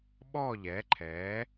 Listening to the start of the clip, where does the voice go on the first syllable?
falling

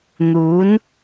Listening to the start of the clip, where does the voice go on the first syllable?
rising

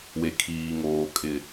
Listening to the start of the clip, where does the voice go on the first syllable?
low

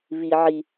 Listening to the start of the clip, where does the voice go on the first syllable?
high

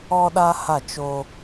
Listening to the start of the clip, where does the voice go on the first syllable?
high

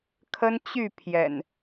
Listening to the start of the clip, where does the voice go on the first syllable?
high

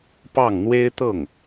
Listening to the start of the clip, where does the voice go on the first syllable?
falling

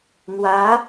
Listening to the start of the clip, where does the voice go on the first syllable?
rising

